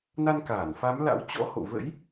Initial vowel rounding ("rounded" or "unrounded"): unrounded